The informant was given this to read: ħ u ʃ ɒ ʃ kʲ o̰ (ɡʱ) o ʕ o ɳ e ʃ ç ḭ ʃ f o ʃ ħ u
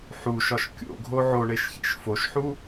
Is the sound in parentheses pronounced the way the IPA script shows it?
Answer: yes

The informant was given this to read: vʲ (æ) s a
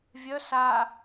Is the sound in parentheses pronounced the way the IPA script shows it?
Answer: no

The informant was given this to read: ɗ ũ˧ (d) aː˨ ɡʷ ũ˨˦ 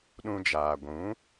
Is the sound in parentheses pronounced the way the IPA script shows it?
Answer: no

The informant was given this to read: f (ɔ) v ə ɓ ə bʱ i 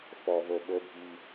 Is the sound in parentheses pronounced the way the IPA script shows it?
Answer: yes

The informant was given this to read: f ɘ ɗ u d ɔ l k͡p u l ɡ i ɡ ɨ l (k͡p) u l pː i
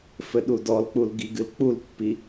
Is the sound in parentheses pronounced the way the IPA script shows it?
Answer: yes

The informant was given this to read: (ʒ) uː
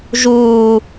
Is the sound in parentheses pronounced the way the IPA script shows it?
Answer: yes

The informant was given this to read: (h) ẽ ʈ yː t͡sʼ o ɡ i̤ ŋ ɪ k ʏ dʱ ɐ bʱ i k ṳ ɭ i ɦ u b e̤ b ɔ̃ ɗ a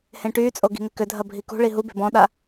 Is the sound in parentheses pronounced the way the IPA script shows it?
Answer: yes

